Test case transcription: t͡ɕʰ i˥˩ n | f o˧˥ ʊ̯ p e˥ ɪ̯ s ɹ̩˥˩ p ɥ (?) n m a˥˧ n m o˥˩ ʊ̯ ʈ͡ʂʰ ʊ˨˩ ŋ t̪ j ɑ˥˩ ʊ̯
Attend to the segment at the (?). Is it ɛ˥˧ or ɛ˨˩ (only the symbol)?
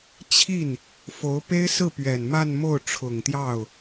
ɛ˨˩